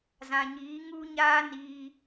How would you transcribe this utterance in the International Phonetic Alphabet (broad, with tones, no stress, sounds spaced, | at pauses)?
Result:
z ã˨ ɲ iː˨˦ ŋ u˦ ɲ aː˦ n iː˧